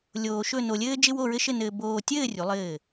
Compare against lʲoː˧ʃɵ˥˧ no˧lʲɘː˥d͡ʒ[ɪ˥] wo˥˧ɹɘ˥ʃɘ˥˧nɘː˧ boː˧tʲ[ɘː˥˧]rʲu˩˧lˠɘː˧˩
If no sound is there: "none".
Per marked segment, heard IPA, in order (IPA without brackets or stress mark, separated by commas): ɪ˥, ɘː˥˧